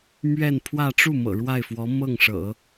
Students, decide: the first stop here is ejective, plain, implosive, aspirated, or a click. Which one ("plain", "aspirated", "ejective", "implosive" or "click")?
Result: aspirated